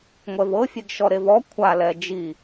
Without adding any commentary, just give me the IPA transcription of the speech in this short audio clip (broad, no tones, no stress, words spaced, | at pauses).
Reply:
ŋʷɛvɤfʲeɡ ʃɔɾevɔ kʷʰalɛ d͡ʒi